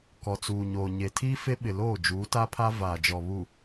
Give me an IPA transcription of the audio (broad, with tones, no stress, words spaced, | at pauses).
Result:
kɔ˨t͡suː˨ɲoː˨ɲe˨ tʰiː˦fe˦ɓɪ˨loː˦˨ d͡ʒuː˨˦ta˦pʰa˦ vaː˨d͡ʒɔ˨βu˨